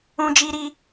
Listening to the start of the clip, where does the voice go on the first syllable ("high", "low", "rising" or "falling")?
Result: high